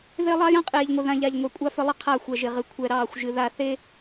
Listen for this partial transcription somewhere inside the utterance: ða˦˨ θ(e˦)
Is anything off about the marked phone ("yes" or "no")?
no